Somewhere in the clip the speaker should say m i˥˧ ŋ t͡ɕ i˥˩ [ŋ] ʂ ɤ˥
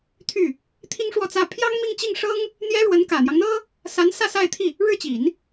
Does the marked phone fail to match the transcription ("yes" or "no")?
no